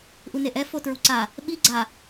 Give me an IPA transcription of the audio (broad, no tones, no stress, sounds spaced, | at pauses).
ʔ u n e ʔ ɛ f o t ɹ u ǀ a | ɓ i ɡ͡ǀ a